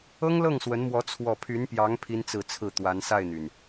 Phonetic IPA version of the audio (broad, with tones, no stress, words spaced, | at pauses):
ɤ˥ŋlɤ˥˩ŋswə˧˥nmwɔ˧˥ t͡sʰwɔ˥˩ pʰy˧˥npjɑ˧˥ŋ pʰi˥nt͡sɹ̩˥˧t͡sʰɹ̩˥˩ t̪wa˧˥nsa˥˩ɪ̯n̪y˩n